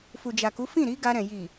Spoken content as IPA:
f u˨ d͡ʒ a˨ k u˨˦ f ĩ˦˨ ɾ i˨˦ ɡ a˧ ɾ ɛ̃˨ j i˨

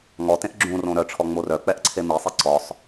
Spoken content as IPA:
ŋ ɔ t ẽ ʔ ɡ͡ǁ ũ r õ ɾ œ ʈ͡ʂʰ ɔ ŋ͡m o r œ k͡p ɛ ʔ ǀʰ e m i sˤ i ǀ ɔ sˤ

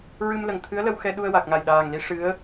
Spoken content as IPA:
ɹ ɨ˧ m l ə˨˩ ŋ t̪ʰ ɨ˧˥ ə̯ l ə˧ w x ɛ˧ ɗ u˧ ə̯ w a˨˩ k̚ ŋ a˨˩ j ɗ aː˨˩ ŋ l i˧˥ ʂ ɨ˧˥ ə̯

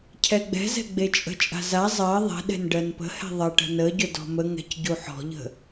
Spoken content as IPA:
cʰ ɛ ɡ͡b ɛ̤ z ɛ̤ ɡ͡b e t͡ʃʼ ə̤ t͡ʃʼ a̤ z a zˤ ɜ ðˤ ɛ̤ ɗ ɛ̤ n ɖ ɜ n p ə̤ h ɛ̤ ðˤ ɐ ʈ ə̤ n ə ɟ ɵ d ɔ̤ m ə ŋ ɛ̤ c ɟ u ħ ɔ̤ ʎ ə̤

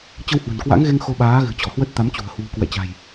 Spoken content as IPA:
t͡ɕ ə˧ w h w ə̤˨˩ n k w a̰˧˥ ŋ ɣ e˧ ŋ x o˧ ɓ aː˨˦ ɣ ɨ̤˨˩ t͡ɕ ɔ˧˩ h w ə˦˥ t̚ t̪ a˨˦ m t͡ɕ ṳ˨˩ ə̯ h w ṳ˨˩ k w ɛ̰˧˨ t͡ɕ a̤˨˩ j

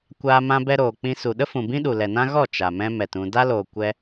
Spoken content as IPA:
kʷ aː˧ m ã˧ b ɛ˧ ɾ oː˨ k͡p ĩ˧ s u˨ ɗ ə˦ f ũ˨ b ĩ˦ ɗ u˨ l ɛ˨ n ã˦ ɣ ɔ˦˨ t͡ʃ a˨ m ɛ̃˦ m ɛ˨ t ũ˨ d a˦ l oː˨ kʷ ɛ˧

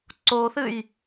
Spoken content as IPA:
ǀ o θ ɨ j

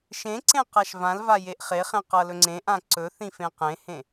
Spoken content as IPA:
ʃ ẽ ǀ ẽ q a ʃ v ã l v a j e ʔ χ e χ ẽ q ʌ l ɵ ŋ͡ǀ ẽ ʔ ã ǀ ɵ θ ĩ f ẽ q ẽ h ẽ

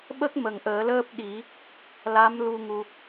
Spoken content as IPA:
ɓ ə˦˥ k̚ m ə˨˩ ŋ ʔ əː˨˩˦ l əː˦˥ p̚ ɗ i˨˩˦ | l a˧˥ m l u˧ ŋ u˧

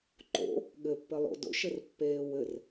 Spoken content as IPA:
ǃ o̰ | ɠ ɘ pː ɘ lˠ o̰ d o̰ ʃ ɘ r pː eː w ɘ r

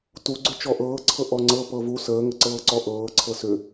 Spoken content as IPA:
t u ɡ͡ǀ ʏ t͡ʃ ɔ ʔ ɤː ǀʰ ɤ ʔ ɔ ŋ͡ǀ ɤ p ɤ v u s əː ŋ ə ǀ ɤː ǀ ɔ ʔ ɤː ǀʰ ɤ s ʏ

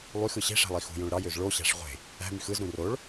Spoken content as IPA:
lˠ y x ɯ ɕ e̤ ʂ æ̤ lˠ i x ṳ j õ ɭ ɾ ɑ j ø z ɭ o ɕ æ̤ ʂ ʁʷ e̤ | æ̤ m y x ɯ z ɾ ũ r o ɭ

